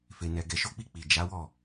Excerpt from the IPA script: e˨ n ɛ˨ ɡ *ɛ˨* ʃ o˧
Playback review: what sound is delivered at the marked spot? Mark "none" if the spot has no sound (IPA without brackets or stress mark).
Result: ɛ˨